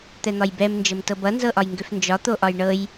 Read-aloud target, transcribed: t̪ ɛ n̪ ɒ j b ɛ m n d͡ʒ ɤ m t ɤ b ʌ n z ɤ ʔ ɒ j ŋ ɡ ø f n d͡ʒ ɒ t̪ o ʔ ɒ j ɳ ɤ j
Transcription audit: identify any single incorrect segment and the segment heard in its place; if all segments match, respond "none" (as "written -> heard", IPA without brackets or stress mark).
none